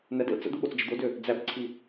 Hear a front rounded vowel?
yes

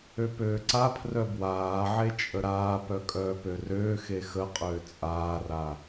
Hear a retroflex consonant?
no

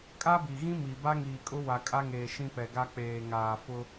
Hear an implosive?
no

